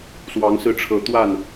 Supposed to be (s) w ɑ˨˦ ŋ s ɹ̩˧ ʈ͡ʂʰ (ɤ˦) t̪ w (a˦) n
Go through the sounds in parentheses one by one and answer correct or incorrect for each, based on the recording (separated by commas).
correct, incorrect, incorrect